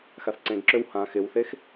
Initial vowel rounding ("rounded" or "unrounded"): unrounded